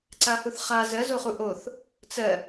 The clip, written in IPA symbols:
ǀ a h u θ χ a z ɜ z o χ u ʔ o θ | t͡s ɜ

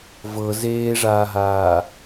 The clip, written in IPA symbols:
v ɤ z eː ʐ aː ɦ aː

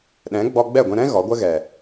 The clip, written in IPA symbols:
ɗ ɛ̃˨˦ ɡ͡b ɔ˧ ɡ͡b ɛ˦˨ ɡʷ ɛ̃˧ ɾ ɛ̃˦ ɣ ɔ˨˦ ɡʷ ə˦ ɣ ɛ˨

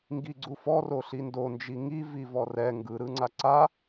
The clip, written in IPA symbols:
ŋ ɡ i ɡ͡ǀ u f ɔ r o ɬ i n d o n d͡ʒ i ŋ i v i v ɔ r ɛ ŋ ɡ ɯ ɾ ɯ ŋ͡ǀ a ǀ a

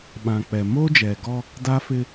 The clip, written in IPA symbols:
ɓ ã˨ k͡p ɛ˨ m o˦ d͡ʒ ɛ˨ ɡ ɔ˦ | d a˦ f ɪ˦

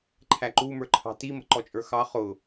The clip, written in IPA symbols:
ǃʰ æ ǃ u m ə˞ ǃʰ ɑ̤ t i m ə̤ ǃ ɔ t͡ʃʼ ə˞ x ɑ χ ʊ

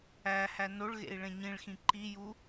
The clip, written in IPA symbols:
æ h æ n o ɭ ɣ ḛ i̯ ɭ ẽ ɲ ĩ ɭ x ĩ ǃ i j u

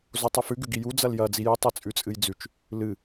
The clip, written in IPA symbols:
z o tˤ ʉ f ʉ ɡ ʉ ɡ i j u d͡z ɐ l j ɐ d͡z i j ɨ tˤ e t͡sʼ ʉ t͡sʼ ɨ j d͡z ʉ t͡ʃ | l ɨ

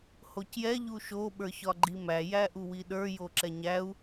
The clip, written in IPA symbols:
h o c j ɛ ʎ u ʃ o ɓ ə˞ ç ɒ ɡ͡ǃ i m æ j æ ʔ u w i ɗ ə˞ j o ǁ ɛ ɲ æ u̯

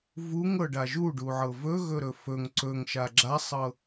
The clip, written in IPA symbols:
v u ŋ ɤ ɖ a ʒ u ɖ u ʕ ɤ v ɵ ɣ ɵ ɾ ɵ f ɵ ŋ ǀ ɵ ŋ ʃ a ɡ͡ǁ a sˤ ɤ

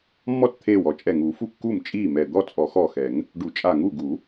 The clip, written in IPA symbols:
mː ɔ˥˩ t t̪ʰ eː˧˩ w ɔ˨˩˦ t͡ʃʼ ɛ˧˩ ŋ uː˨˩˦ f u˥˩ kː uː˥˩ m t͡ʃʼ iː˥˩ m ɛ˧˩ d̪ ɔ˥˩ t͡sʼ ɔ˨˩˦ x ɔ˧˩ x ɛ˨˩˦ ŋ | ɖ u˨˩˦ t͡ʃʼ a˧˩ ŋ u˥˩ ɡ u˨˩˦

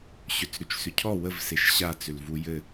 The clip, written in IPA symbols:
ɕ ʏ t͡s ɾ ʉ t͡ʃ s ʏ cʰ ɔ w ə v s e ʃ ɕ a t͡s ʏ l v u j ɘ

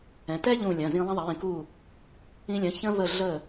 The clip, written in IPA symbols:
ɛ̃˩˧ t ɛ˥ ʎ ũ˧˩ lʲ ɐ̃˩˧˩ z ĩ˧ lˠ ɐ̃˧ ðˤ ɐ˩˧ j ĩ˩˧ k u˧˩ | ĩ˧ lʲ ɐ̃˩˧˩ ç ə̃˧ v ə˧˩ ɮ ə˧˩

